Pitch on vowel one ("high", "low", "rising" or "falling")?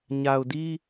low